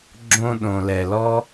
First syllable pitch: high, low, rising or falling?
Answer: high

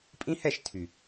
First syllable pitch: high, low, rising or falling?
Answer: high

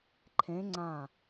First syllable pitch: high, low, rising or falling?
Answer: rising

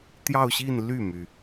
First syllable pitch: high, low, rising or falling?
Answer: falling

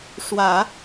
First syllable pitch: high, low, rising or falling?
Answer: low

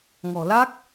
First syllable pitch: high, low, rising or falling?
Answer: low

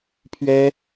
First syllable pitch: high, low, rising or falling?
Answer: high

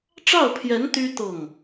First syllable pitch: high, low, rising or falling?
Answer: falling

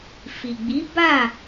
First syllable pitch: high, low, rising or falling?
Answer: low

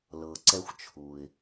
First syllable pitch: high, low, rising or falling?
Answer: low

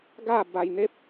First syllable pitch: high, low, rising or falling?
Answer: falling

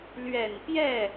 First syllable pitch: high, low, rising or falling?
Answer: low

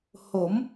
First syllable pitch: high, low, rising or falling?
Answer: rising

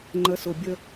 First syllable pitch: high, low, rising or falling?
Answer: rising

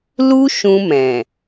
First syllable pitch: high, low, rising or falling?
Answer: high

